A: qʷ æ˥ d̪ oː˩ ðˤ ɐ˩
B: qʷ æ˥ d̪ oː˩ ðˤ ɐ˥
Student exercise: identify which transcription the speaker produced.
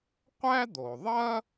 B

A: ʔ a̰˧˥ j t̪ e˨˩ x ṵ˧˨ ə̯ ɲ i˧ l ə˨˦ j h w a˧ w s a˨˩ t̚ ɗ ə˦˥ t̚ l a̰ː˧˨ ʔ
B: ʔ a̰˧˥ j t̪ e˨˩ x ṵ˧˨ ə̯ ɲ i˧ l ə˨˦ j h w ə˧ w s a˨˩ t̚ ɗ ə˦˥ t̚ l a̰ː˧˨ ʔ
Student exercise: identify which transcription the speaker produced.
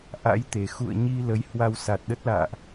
A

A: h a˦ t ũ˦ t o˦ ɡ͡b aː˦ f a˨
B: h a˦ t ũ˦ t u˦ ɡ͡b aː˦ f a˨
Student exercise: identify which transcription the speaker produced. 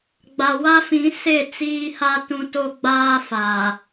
A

